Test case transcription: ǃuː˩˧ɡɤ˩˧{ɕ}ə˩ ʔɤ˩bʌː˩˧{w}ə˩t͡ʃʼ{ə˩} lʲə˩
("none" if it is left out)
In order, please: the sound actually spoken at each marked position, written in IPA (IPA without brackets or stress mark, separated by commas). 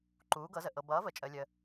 z, v, ə˩